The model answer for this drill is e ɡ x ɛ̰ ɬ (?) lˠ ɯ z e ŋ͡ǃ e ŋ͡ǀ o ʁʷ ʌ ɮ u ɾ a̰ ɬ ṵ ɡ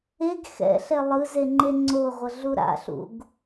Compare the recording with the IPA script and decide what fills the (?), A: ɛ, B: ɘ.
A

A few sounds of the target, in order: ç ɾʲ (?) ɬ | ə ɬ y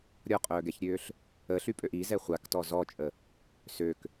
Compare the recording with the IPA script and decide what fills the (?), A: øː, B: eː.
A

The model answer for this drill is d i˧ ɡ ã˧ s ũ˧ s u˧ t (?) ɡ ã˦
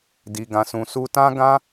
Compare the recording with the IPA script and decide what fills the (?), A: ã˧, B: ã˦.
B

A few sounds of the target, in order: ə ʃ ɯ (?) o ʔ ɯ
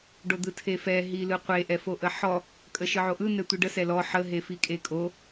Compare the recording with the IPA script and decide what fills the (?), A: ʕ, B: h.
A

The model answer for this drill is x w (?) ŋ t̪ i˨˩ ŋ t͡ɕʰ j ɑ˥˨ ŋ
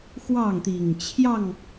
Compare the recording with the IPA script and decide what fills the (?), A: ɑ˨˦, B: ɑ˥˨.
B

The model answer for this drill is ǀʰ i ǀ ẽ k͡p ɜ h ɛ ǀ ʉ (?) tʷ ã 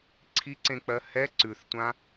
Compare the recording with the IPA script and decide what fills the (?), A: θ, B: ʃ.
A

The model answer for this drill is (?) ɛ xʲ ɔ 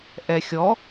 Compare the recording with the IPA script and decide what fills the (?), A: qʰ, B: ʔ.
B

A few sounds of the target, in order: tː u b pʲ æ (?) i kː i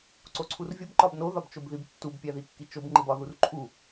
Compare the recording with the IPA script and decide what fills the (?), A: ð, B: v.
A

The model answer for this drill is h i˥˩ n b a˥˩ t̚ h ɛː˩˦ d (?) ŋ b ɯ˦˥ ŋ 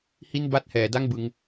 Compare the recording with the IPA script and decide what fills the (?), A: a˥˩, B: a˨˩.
A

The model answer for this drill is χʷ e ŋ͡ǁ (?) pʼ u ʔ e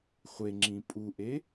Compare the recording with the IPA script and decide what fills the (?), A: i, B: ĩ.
B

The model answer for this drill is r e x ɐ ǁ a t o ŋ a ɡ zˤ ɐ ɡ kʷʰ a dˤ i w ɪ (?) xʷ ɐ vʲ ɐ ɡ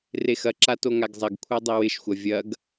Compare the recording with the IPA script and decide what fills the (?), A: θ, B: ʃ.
B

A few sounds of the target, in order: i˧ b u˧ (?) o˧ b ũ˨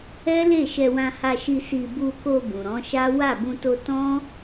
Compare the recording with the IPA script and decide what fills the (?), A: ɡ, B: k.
B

